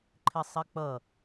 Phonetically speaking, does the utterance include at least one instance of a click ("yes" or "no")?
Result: yes